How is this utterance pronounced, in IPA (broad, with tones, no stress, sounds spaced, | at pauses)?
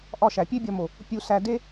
ʔ ɒ˦˨ ʃ æ˨ pʲ e˦ bʲ ɒ˧ m o˨ | pʲ u˧ s æ˧ d e˦